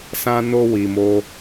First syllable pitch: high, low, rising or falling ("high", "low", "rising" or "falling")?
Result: high